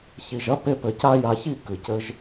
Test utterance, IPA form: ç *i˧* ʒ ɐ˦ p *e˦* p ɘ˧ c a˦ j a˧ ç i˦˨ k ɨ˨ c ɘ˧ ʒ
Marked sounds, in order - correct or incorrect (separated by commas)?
correct, correct